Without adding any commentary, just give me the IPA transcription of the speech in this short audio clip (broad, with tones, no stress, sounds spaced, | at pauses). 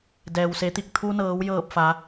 d ɛː˩ w s e˩˧ t̪ i˧˩ k̚ t̪ʰ u˧ n ɤː˩˧ w j ɤː˧˩ p̚ f a˩˧